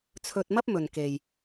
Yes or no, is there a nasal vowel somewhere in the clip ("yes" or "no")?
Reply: no